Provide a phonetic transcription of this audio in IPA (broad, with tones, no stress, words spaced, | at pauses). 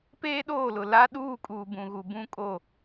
peː˦ɗoː˦˨lʊ˨ la˦ ɗuː˦˨kʼuː˨ bũ˨ɣu˨ bũ˦kʼo˦˨